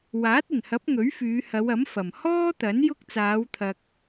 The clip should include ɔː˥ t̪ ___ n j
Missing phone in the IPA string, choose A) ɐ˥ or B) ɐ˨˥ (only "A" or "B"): B